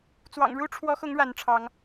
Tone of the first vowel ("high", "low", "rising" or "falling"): low